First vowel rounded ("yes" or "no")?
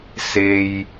no